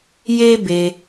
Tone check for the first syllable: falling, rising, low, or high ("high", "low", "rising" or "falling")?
high